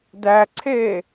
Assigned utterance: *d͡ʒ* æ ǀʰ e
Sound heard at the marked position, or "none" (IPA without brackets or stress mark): d